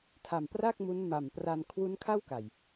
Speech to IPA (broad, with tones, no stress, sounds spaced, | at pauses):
tʰ a˨˩ m p r a˥˩ k̚ m u˦˥ n m a˨˩ m p r a˧ n kʰ w u˦˥ n kʰ a˥˩ w k a˨˩ j